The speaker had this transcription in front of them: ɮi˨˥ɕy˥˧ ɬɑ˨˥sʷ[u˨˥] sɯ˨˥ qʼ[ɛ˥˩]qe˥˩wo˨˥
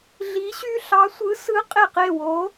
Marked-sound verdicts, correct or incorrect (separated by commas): incorrect, incorrect